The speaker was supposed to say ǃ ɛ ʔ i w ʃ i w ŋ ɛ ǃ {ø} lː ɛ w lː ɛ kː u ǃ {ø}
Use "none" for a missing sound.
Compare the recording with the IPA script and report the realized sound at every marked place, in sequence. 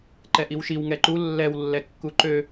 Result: u, ø

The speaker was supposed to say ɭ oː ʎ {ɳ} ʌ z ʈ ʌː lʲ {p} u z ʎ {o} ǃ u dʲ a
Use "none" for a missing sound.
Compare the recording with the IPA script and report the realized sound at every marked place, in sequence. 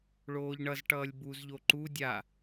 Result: ɳ, b, o

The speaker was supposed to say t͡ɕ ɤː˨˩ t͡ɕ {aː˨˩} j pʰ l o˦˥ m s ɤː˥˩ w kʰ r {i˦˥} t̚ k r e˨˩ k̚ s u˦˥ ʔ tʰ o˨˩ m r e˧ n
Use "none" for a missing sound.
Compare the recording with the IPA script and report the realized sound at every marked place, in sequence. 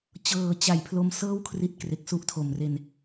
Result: a˨˩, i˦˥

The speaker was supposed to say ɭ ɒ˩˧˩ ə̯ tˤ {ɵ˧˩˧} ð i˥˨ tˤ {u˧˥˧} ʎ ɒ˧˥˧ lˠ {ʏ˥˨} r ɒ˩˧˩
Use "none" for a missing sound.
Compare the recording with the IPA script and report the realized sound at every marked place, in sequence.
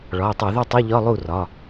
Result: o˧˩˧, u˧˥˧, u˥˨

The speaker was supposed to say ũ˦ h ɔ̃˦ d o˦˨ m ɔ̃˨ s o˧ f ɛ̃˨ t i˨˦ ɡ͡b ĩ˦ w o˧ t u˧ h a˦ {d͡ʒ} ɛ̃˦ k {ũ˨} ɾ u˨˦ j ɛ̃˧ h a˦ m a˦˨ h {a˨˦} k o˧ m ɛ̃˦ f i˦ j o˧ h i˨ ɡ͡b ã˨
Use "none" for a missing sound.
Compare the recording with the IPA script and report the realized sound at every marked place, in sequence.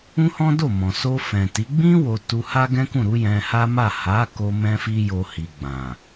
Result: ɡ, ũ˦˨, a˨˦

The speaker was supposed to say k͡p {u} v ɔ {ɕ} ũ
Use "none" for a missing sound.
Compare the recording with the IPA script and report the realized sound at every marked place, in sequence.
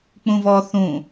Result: ũ, θ

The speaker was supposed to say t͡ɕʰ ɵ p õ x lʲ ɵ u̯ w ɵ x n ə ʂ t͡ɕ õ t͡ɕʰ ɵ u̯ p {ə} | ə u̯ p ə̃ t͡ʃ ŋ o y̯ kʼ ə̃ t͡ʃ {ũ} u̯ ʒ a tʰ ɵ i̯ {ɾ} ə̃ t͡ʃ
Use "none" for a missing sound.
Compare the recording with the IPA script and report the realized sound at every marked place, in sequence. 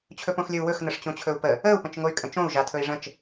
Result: ə, õ, ʐ

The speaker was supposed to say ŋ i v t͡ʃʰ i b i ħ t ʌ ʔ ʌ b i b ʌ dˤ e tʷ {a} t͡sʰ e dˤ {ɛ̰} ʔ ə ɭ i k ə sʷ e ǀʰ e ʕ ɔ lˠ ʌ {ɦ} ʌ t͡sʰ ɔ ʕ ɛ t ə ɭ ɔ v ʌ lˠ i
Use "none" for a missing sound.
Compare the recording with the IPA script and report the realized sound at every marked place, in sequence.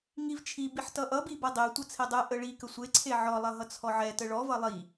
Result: ʌ, ɛ, ɦ

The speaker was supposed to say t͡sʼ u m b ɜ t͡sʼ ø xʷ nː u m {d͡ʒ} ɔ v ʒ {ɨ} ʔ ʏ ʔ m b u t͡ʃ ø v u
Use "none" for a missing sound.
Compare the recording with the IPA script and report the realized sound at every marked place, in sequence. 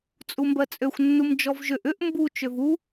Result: d͡ʒ, ʏ

